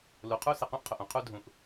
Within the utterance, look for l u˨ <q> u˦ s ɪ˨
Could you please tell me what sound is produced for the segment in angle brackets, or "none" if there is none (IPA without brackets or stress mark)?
qʰ